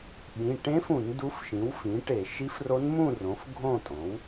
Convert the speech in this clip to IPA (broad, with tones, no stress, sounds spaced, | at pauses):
ɓ ĩ˩˧˩ ʈ ẽ˧˥ f ũ˧˩˧ n d u˧˥ f ʃ ĩ˩˥ w f ĩ˩˥ ʈ e˧˩˧ ʃ i˧˥ f r o˧˥ n m ũ˥˨ r õ˩˥ f ɡʱ õ˥˨ tʼ õ˩˥ w